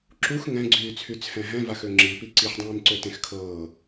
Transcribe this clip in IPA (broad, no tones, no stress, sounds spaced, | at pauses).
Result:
ǁ u x ŋ ɛ̃ ɡ͡ǀ yː t͡sʰ y t͡sʰ ɛ̃ ɦ ɛ̃ v a x ø ŋ͡ǁ i p i ǀ i ħ dˤ ĩː m ǀ ø t ẽ x kʰ ɤː